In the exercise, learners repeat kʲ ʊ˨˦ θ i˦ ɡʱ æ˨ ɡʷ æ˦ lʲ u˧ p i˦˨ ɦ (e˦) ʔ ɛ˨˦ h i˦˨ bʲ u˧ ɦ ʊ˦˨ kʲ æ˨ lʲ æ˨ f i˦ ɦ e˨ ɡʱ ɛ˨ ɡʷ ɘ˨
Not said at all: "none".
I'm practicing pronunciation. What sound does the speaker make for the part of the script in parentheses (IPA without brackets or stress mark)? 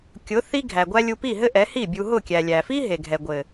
ɘ˦